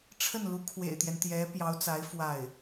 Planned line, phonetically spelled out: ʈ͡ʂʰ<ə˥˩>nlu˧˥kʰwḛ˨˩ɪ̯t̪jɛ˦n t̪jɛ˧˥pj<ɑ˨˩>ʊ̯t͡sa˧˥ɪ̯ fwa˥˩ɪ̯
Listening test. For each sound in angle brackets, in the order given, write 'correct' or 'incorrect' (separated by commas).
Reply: correct, incorrect